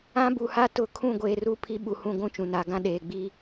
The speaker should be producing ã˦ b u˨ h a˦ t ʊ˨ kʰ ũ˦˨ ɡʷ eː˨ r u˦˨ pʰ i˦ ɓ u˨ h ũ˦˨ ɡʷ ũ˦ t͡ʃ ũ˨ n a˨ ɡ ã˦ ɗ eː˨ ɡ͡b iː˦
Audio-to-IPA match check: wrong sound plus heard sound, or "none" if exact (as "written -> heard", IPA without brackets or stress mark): none